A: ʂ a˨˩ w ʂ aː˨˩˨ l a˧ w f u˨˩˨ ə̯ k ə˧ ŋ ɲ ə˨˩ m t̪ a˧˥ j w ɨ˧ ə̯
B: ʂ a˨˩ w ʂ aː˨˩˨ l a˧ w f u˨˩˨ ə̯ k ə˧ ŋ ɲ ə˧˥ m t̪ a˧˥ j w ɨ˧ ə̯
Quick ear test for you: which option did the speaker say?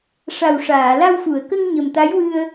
A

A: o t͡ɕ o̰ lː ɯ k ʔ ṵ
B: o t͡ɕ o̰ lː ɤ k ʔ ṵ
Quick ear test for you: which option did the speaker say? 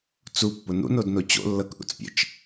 B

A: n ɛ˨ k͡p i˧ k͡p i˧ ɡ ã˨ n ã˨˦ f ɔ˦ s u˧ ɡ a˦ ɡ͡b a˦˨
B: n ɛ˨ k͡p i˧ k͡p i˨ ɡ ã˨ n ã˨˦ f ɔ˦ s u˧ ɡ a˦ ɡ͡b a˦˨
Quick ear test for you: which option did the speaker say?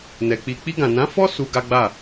A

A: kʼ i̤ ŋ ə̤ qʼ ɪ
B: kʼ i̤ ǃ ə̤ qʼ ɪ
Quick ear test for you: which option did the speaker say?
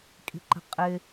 B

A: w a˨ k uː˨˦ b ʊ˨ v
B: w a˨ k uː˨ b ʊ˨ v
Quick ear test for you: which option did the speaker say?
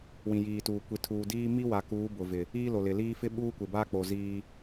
A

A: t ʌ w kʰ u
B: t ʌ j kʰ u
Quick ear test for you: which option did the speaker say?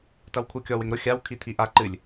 A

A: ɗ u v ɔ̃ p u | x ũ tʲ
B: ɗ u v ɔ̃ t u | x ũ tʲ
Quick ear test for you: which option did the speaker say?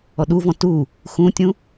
B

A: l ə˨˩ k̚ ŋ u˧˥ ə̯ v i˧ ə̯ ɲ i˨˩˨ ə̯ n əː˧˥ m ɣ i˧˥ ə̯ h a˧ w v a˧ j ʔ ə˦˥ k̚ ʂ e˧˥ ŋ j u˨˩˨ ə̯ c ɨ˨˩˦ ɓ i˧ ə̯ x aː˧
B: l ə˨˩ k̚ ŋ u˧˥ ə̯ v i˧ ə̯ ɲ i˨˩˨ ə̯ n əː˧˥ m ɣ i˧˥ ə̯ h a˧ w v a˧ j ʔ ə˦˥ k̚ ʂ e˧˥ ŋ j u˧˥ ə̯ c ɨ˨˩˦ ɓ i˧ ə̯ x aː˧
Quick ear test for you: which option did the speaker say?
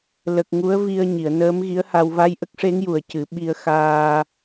A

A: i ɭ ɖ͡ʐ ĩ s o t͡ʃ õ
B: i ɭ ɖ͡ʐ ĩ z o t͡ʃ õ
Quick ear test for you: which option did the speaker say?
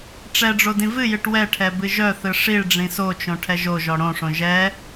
A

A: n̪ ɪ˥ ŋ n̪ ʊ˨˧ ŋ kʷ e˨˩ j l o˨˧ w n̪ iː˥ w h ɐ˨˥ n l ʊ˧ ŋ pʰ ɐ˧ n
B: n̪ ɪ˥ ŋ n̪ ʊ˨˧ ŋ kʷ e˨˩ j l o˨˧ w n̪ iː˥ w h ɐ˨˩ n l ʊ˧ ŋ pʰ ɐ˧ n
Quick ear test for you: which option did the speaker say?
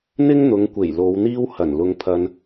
B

